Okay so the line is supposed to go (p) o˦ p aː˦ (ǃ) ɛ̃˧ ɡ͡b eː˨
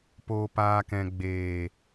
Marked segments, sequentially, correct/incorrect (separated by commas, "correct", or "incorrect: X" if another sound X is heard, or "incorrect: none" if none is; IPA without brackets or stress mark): correct, incorrect: k